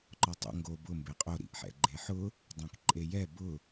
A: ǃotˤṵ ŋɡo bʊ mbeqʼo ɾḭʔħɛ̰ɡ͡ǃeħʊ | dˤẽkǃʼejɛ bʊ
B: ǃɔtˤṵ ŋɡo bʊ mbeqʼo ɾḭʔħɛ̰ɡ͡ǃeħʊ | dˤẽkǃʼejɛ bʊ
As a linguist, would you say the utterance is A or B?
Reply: B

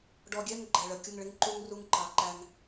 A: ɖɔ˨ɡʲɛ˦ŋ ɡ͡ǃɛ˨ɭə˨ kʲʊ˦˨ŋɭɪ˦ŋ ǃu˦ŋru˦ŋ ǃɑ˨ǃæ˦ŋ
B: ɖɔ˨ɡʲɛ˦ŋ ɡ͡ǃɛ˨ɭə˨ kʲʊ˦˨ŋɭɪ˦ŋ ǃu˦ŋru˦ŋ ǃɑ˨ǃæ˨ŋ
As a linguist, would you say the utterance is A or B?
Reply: A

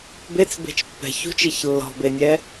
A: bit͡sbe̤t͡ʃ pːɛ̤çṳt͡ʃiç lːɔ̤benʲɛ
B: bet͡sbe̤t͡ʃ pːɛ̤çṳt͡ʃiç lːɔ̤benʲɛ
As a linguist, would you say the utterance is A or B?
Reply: B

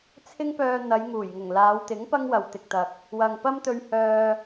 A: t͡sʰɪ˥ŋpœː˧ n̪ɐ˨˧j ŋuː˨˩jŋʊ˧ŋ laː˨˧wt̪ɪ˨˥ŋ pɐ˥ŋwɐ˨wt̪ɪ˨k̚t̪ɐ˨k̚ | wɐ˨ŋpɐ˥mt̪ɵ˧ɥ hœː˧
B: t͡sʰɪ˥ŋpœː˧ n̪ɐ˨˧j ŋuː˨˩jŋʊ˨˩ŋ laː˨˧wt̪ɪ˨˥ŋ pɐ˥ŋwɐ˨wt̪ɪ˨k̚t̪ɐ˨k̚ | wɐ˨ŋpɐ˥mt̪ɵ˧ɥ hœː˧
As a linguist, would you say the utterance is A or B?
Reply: B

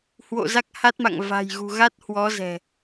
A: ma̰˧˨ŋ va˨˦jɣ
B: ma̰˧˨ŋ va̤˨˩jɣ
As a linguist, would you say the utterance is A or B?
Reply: B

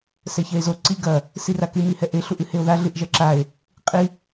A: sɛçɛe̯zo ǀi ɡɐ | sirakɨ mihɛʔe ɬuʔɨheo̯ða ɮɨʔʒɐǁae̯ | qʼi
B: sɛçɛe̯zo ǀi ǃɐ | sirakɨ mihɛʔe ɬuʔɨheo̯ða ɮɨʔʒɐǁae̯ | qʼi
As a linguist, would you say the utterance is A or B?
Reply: A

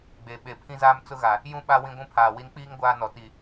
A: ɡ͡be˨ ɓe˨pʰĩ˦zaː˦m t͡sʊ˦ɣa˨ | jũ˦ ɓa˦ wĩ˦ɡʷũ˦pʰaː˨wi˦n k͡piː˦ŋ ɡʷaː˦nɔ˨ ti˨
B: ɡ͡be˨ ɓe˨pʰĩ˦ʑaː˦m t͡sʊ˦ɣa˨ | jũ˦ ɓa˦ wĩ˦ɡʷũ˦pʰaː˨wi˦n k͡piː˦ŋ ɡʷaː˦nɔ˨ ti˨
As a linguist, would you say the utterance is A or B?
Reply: A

